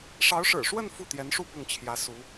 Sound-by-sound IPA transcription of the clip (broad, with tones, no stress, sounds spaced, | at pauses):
ʂ ɑ˧˥ ʊ̯ ʂ ɻ̩˨˩ ʂ w ə˥˧ n f u˥˩ t̪ j ɛ˧˥ n ʂ u˥˧ p ʊ˥˩ ŋ t͡ɕʰ j ä˧˥ s u˧˥